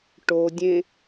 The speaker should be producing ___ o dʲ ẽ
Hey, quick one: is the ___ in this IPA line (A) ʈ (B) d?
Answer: A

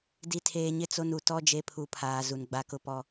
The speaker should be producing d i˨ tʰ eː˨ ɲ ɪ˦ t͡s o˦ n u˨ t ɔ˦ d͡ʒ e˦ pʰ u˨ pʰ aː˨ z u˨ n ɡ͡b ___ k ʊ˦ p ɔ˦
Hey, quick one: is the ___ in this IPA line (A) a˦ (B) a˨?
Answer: A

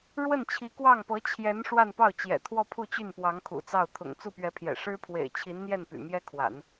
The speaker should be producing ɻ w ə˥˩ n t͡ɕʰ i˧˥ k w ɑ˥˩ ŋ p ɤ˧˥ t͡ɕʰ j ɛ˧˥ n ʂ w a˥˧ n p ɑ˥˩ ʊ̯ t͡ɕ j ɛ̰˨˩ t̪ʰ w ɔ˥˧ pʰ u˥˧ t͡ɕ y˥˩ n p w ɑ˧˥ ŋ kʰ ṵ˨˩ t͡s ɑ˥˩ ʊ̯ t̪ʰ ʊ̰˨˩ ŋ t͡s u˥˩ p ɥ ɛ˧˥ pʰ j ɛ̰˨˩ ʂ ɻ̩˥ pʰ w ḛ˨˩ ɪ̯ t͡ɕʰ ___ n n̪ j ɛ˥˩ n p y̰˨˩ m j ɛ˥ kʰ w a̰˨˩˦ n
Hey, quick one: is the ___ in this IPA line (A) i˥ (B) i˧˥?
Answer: B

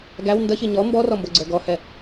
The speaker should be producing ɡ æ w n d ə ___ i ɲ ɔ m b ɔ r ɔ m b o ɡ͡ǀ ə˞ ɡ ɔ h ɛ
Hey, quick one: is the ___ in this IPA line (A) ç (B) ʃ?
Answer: A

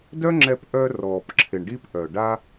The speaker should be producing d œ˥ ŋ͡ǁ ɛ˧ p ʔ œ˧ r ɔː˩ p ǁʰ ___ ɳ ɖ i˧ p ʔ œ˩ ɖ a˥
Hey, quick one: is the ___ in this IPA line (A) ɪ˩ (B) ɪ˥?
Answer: A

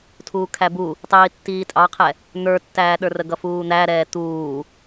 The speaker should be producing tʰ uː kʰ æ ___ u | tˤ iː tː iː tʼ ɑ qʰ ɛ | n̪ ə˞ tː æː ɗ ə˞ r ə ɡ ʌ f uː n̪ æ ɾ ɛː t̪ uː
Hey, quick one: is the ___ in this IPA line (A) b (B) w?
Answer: A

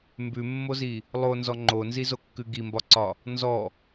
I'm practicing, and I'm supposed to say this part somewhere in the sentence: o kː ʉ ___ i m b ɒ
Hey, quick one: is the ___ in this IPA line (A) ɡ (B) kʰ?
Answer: A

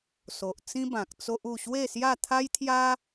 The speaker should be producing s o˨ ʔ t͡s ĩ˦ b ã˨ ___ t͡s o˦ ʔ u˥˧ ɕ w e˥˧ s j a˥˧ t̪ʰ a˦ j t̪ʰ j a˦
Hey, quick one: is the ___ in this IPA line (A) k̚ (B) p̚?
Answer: A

